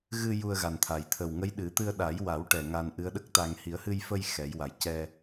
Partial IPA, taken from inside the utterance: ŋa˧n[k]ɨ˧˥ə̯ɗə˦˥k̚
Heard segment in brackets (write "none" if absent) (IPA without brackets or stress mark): ʔ